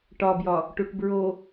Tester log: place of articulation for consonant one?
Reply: retroflex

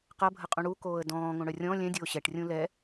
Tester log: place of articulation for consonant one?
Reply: uvular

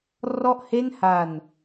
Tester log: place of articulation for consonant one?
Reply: alveolar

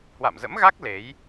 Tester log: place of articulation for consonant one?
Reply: glottal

